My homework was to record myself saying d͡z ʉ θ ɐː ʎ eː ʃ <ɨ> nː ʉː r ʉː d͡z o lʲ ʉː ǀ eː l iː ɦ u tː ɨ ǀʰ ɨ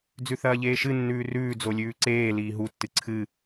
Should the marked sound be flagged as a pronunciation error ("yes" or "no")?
no